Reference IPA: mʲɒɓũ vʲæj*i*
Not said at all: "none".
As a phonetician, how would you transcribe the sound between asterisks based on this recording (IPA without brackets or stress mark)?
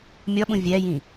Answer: ĩ